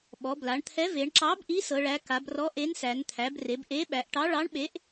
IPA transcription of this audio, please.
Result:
ɓ ɔ˩˧ b l a˩˧ ɳ t̪ʰ ɛ˨˥ v e˩˧ ɳ ǁ ɑ˨˥ b ʔ i˨˥ s ɤ˩˧ ɭ æ˩˧ k a˩˧ b r ɔ˨˥ ʔ e˨˥ n s æ˩˧ n t̪ʰ æ˩˧ b r e˩˧ b ʔ e˨˥ ɓ æ˩˧ ʔ ʈ ɑ˨˥ ɭ ɑ˨˥ ɳ ɓ e˨˥ ʔ

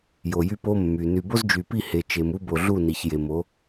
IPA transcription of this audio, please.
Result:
j o˨ j y˦ p o˦ mː y˨ n y˨ b o˦ z d͡ʒ y˨ p i˦˨ h e˨ t͡ʃ e˨ m u˦ b o˨ ɮ u˦˨ n i˨ ç j e˨ m o˨˦

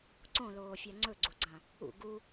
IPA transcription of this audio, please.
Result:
ǀ õ l oː fʲ a ŋ͡ǀ ɵ ɡ͡ǀ u ɡ͡ǀ ã | ṵ ɡ u

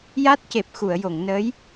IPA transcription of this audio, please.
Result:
j a˦˥ t̚ c e˨˩ p̚ x u˨˩˨ ə̯ j o˨˩˨ ŋ n ə˧˥ j

